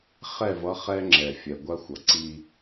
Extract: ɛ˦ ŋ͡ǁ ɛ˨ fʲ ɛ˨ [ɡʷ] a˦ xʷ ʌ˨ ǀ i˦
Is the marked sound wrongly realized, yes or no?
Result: no